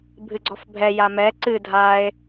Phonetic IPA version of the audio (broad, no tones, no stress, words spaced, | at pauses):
bʱɨɡ͡ǀɔfbʱɛ jamɛ ǀɨ dʱae̯